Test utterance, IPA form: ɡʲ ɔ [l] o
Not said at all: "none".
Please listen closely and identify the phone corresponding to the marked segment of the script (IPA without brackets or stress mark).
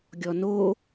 n